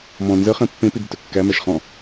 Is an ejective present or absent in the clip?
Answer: absent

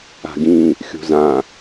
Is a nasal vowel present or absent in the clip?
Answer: present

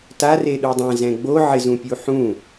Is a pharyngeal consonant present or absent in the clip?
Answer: present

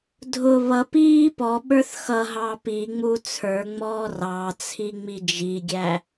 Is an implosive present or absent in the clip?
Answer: present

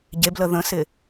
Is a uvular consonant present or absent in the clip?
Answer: absent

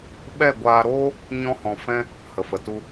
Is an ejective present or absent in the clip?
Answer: absent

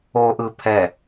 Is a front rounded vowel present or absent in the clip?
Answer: absent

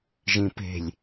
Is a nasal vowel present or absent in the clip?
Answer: present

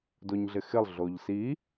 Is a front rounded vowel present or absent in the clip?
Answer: absent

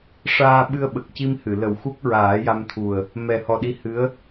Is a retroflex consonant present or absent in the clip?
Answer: present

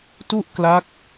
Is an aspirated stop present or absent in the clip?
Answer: absent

